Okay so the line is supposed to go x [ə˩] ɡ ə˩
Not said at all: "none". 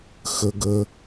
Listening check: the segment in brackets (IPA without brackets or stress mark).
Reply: ə˩